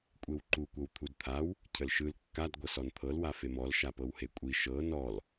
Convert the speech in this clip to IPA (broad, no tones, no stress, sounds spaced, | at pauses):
kʷʼ e w ǃ u kʷ ɤ w t̪ʰ u d t̪ʰ a w | cʰ ə l ʃ ɯ l kː a d ɡʷ ɤ s ɔ n t̪ʰ ɤ l w a f e m ɔ l ʃ a p ɤ w h e kʷʼ i ʃ ɤ n ɔ l